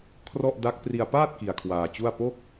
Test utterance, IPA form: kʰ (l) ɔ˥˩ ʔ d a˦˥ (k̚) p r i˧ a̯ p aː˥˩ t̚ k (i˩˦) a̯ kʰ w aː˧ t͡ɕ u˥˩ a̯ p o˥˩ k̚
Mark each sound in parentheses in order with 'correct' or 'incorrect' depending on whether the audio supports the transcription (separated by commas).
incorrect, correct, incorrect